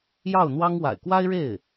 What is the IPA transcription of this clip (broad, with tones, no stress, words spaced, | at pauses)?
jɑ˥˩ʊ̯n̪wɑ˥ŋ wa̰˨˩ɪ̯kwa˥ɪ̯ɻe˥˩ɪ̯